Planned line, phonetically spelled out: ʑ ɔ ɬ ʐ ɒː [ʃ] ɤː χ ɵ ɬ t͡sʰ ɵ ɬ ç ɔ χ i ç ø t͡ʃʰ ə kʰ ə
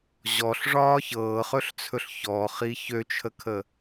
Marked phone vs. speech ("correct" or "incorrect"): incorrect